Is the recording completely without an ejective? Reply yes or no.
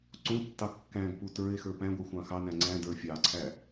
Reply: yes